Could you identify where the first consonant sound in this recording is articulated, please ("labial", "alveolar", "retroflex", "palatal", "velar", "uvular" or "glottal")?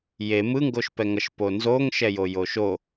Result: palatal